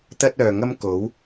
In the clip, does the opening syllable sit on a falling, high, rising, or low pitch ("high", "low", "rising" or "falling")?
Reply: high